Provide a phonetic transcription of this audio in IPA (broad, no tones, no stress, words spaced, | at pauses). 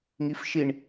ŋifʃiɳ